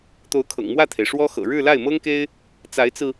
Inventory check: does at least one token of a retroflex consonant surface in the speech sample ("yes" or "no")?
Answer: yes